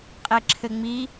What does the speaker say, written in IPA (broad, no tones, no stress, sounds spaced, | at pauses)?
qʼ e ǁʰ ɘ ŋ͡m i